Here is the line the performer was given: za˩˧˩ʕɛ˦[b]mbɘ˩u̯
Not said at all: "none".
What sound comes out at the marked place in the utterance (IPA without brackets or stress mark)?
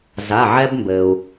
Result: b